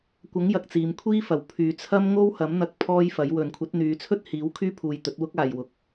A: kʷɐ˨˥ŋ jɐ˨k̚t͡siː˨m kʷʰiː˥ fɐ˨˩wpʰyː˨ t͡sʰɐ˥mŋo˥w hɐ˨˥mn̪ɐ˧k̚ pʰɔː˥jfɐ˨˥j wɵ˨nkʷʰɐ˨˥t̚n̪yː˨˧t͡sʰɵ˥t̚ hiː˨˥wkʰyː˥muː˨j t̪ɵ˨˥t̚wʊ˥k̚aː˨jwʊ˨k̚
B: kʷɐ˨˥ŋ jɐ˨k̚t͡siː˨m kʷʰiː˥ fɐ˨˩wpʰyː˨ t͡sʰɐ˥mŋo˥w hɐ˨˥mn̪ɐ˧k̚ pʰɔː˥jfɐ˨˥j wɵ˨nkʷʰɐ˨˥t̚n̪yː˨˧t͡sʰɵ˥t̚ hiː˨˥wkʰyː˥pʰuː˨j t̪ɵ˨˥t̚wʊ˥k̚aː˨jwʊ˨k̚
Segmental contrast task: B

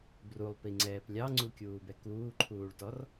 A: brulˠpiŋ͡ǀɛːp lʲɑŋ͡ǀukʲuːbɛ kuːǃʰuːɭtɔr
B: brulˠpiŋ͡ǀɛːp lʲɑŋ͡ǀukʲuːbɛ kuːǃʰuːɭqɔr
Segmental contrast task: A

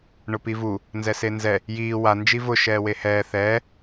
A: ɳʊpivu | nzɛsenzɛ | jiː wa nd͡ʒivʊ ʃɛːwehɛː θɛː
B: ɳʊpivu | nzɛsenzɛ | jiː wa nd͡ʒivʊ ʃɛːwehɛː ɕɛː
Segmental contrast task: A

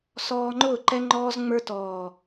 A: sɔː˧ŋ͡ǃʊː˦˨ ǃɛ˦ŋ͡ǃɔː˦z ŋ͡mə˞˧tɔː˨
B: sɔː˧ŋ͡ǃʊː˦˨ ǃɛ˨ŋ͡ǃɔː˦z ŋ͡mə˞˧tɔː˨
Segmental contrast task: A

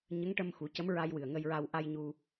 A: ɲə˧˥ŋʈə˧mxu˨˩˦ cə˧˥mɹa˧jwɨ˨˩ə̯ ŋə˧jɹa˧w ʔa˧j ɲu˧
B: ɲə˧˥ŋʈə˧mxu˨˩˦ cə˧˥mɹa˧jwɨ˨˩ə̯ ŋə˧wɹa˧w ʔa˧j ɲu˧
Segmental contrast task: A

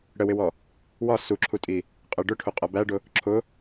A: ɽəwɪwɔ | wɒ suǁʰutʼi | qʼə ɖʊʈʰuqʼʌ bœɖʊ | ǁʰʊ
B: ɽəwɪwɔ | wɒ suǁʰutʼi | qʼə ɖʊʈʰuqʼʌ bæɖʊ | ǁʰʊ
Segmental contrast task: B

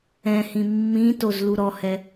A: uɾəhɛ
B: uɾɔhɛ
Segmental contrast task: B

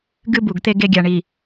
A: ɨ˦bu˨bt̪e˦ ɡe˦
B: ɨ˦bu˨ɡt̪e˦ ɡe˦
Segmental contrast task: B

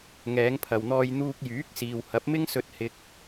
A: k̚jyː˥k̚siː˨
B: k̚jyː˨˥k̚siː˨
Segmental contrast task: B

